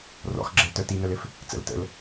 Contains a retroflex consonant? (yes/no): no